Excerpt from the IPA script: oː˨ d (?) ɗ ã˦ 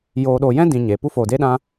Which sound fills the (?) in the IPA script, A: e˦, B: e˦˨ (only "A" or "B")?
A